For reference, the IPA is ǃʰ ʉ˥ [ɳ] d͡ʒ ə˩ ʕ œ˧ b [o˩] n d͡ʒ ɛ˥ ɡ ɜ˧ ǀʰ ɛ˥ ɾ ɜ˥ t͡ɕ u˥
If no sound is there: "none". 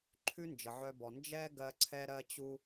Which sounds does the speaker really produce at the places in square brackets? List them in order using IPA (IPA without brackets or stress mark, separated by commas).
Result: n, ɔ˩